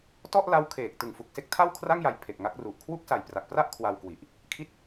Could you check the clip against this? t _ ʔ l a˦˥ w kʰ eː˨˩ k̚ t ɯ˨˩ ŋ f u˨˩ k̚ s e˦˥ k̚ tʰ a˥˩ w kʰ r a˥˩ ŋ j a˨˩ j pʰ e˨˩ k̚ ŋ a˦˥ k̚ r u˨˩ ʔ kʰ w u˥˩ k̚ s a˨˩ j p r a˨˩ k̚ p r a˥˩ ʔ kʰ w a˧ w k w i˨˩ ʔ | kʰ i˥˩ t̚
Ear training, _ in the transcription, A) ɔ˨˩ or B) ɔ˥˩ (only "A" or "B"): B